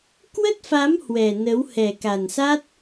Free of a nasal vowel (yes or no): yes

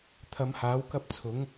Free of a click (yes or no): yes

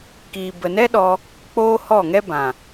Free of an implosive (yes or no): no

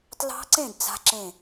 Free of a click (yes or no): no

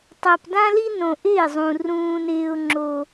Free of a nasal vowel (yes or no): no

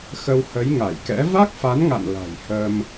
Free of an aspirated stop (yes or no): yes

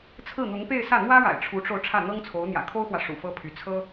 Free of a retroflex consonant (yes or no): no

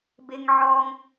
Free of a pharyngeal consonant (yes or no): no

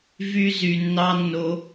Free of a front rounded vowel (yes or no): no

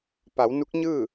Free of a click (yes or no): yes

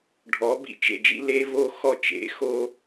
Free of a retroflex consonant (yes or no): no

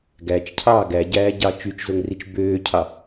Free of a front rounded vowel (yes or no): no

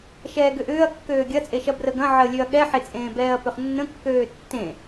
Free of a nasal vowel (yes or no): no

